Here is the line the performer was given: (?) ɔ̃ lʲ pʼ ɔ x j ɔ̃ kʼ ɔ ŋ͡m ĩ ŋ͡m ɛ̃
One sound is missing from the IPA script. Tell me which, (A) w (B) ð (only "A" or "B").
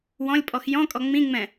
A